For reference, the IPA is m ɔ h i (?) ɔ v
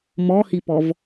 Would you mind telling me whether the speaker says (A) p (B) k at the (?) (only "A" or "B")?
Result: A